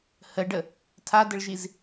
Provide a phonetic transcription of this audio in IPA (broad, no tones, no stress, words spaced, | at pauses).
həɖə | tʰadəɭʒiz